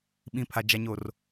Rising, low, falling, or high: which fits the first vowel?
low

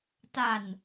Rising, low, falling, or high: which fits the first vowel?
low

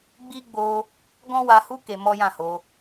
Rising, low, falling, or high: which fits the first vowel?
high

